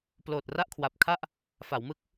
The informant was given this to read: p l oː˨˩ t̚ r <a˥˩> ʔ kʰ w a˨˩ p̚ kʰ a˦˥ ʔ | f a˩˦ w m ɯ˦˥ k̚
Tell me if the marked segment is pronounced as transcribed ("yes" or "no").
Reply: yes